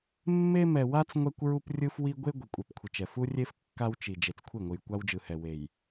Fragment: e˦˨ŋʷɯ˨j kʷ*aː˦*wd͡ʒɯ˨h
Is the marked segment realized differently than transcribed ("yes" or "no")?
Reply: yes